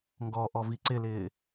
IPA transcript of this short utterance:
ŋɡɔʔɔvi ǀɪlɪː

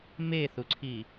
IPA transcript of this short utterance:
meθuǀʰi

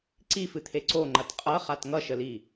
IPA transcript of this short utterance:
ǀifɨt̪ʰe ǀoŋ͡ǃɐt qʼʌχat ŋʌʃəli

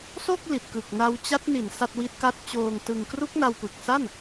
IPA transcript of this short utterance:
so˥˩k̚ li˨˩t̚kɯ˨˩k̚na˦˥w t͡ɕa˦˥t̚ni˨˩n sa˥˩t̚wi˦˥t̚ka˥˩t̚ t͡ɕoː˧ŋtɯ˧ŋ kru˦˥k̚na˧wpɯ˨˩k̚sa˥˩n

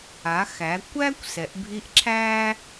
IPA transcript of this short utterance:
a˩˧xæ˩˧ kʷæː˥kʷsɛ˩˧ʔbʱi˧˥ʔ ǁʰæː˥

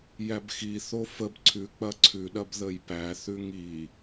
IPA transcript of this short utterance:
jæbxi θofəb ǀʰʉk͡pɐ ǀʰʉɗɐb ðəjpæ θʉŋi

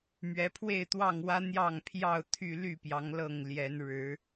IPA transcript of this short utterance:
mɥɛ˨˦pʰwe˥˨ɪ̯t̪wɑ˥˨ŋwä˦ n̪jɑ˥˨ŋpʰjɑ˥˨ʊ̯ t̪ʰy˥˨ly˥˨pjɑ˨˦ŋ lɤ˥˨ŋljɛ˨˦n ɻɻ̩˨˦

